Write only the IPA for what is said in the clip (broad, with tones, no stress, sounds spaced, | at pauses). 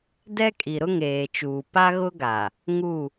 d ɛ˦ kʼ i˨ ɾ ʊ˦ ŋ eː˨ t͡ʃ uː˨ p a˦ ɣ ʊ˦ ɡ a˨ | ŋ u˦˨